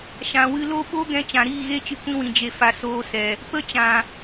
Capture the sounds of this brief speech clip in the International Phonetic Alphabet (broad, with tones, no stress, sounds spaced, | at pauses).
ʃ ã˨ w ɨ˧ l o˦ ɓ o˦ ɡ ɛ̃˧ t͡ʃ ã˨ ɾ iː˦˨ ɣ e˦ t͡ʃ ɨ˧ kʷ ĩ˧ w ĩ˨ d͡ʒ e˨ f a˨ s oː˧ s ɛ˨ | p ə˦ t͡ʃ ã˨